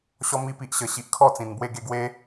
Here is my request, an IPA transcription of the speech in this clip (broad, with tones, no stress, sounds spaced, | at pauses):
ɕ ɔ˧ m i˧ p i˨ ʔ ɕ ə˨˩ ɕ i˨ ʔ kʰ ɔ˥˧ t͡s ĩ˨˩ n b w e˥˧ ɡ e˥˧ ɡ w e˧